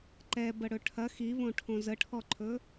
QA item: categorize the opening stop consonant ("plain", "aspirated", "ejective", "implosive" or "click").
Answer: click